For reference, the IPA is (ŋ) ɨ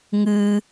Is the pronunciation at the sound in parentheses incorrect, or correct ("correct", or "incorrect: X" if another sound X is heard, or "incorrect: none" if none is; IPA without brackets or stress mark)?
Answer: correct